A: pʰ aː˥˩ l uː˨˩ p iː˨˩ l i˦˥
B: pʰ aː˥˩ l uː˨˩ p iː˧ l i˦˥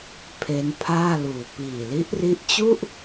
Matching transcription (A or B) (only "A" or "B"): A